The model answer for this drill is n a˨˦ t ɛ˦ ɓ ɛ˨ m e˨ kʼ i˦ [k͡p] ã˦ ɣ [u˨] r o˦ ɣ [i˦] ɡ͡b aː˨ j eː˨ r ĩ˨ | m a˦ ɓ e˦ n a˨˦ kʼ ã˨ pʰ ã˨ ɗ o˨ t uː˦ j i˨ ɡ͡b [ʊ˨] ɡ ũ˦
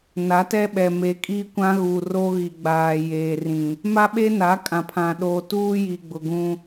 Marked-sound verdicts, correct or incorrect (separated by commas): incorrect, correct, incorrect, correct